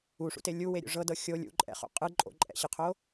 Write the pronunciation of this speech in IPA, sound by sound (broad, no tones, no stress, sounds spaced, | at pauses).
u ʂ ṵ t e lʲ u w e ɾʲ ṵ ʐ ɤ d ɤ xʲ o lʲ ṵ ǃʼ ɛ̰ χ o̰ qʼ ɯ ǃʼ o̰ ǃʼ ɛ̰ ɕ ɯ qʰ o